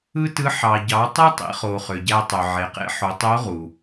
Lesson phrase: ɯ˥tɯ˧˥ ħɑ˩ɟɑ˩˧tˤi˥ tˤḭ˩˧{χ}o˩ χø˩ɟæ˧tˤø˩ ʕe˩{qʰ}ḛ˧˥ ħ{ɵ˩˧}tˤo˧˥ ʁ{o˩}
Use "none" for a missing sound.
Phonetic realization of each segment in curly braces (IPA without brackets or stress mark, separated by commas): χ, q, o˩˧, u˩